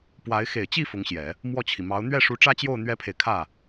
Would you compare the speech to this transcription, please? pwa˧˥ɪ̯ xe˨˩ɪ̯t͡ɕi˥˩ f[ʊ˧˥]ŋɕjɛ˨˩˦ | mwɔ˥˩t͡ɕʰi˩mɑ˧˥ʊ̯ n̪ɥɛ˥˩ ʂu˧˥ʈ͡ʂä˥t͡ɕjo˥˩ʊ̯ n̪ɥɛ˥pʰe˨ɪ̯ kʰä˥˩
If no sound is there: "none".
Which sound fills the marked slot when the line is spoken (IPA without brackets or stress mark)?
ʊ˧˥